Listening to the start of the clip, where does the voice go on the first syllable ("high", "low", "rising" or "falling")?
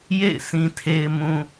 falling